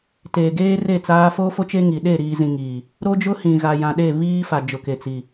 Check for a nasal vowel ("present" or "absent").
present